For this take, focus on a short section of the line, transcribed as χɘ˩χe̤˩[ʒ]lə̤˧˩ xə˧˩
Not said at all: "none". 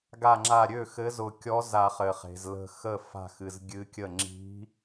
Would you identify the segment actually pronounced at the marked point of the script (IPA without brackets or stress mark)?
z